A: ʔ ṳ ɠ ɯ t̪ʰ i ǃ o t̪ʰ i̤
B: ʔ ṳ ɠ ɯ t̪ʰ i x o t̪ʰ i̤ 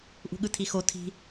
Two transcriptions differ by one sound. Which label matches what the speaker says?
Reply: B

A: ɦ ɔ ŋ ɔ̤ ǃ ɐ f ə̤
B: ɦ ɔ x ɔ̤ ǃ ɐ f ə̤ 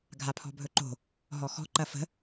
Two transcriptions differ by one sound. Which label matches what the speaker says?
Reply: B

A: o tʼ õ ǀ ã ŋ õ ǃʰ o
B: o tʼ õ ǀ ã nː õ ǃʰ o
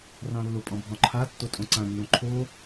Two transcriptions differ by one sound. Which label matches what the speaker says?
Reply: B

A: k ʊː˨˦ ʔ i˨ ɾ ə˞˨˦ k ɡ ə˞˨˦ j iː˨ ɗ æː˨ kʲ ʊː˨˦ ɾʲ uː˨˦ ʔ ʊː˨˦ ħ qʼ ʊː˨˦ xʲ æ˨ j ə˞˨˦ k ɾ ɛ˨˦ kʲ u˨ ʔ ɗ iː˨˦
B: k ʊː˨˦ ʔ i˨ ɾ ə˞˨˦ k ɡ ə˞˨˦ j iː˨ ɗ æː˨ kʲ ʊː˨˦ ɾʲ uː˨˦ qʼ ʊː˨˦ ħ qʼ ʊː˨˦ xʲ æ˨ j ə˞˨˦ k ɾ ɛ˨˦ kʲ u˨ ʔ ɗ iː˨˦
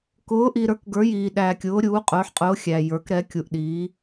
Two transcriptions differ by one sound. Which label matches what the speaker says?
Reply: B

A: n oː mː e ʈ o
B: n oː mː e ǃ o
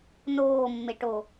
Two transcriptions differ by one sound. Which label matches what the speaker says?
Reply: A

